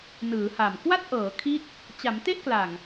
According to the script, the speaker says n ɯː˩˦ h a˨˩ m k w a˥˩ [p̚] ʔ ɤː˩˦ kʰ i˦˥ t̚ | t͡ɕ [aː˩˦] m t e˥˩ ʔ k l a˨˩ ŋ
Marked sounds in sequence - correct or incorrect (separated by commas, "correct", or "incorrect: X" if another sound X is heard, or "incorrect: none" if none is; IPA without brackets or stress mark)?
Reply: incorrect: t̚, incorrect: a˩˦